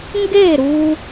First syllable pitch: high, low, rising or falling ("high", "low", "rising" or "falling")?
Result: falling